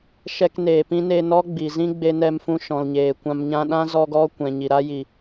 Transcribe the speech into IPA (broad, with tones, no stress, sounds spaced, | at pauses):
ʃ ɛ˧ k n eː˨ p ĩ˦ n e˧ n ɔ˦ ɡ͡b i˨ z ĩ˦ ɡ͡b e˧ n ɛ˧ m f ũ˧ ʃ ɔ̃˨ l ɲ eː˨ kʷ ã˧ m ɲ ã˧ ɗ ã˦ z ɔ˧ ɡ ɔ˧ kʷ ɛ̃˨ ɲ i˨ ɾ a˦ j i˨